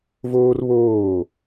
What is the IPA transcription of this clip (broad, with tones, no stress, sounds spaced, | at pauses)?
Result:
v oː˦ r β oː˦˨